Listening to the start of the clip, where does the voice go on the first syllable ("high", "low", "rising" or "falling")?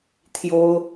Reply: high